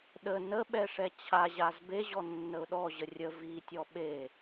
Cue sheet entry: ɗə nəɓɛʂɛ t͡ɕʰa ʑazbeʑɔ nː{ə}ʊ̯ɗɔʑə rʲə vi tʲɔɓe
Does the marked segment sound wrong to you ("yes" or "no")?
no